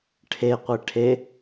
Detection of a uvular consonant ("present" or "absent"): present